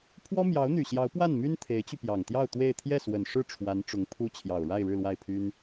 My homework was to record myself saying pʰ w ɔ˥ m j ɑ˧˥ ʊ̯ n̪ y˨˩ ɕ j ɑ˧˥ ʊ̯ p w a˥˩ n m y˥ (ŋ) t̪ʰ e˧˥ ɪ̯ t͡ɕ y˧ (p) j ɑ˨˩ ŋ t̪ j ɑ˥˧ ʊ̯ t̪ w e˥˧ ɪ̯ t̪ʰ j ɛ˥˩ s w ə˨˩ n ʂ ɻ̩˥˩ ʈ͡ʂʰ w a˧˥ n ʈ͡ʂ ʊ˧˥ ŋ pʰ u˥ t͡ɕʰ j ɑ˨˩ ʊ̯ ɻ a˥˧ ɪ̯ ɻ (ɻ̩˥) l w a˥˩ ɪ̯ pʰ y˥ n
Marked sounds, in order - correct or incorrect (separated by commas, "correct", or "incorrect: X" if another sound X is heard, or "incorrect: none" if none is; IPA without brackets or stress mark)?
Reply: incorrect: n, correct, incorrect: ɻ̩˥˧